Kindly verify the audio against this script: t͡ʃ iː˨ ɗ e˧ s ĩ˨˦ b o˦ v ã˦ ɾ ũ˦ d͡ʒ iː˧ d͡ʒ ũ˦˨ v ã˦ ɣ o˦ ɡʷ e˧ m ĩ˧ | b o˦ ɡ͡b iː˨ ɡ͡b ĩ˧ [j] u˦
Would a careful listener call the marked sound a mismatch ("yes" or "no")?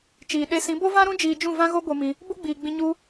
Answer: yes